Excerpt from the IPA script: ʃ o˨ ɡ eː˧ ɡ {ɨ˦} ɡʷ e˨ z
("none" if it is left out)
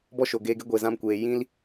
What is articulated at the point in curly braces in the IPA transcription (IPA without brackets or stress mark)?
e˦